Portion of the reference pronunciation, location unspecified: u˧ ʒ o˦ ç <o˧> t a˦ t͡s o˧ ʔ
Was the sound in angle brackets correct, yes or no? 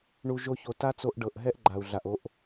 yes